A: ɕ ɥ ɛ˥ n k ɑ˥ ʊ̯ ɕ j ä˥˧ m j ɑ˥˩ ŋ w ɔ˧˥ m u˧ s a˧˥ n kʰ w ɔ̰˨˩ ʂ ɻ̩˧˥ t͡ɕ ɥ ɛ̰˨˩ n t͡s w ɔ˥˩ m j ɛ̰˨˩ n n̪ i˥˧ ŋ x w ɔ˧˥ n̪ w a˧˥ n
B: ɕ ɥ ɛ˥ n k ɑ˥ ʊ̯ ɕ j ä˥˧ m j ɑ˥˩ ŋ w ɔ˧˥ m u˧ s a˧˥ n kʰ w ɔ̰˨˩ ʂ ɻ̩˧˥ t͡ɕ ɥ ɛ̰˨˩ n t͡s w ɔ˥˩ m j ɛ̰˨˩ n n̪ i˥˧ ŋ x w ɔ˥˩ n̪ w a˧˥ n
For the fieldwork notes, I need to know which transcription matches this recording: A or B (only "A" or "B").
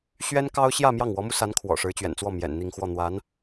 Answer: B